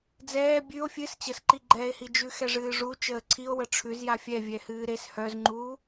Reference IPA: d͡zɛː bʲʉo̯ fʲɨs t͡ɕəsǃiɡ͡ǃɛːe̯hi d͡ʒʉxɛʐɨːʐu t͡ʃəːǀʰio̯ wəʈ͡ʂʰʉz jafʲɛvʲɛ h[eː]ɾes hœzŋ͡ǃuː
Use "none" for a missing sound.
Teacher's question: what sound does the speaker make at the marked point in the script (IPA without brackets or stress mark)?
ɨː